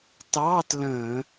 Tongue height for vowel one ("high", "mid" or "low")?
low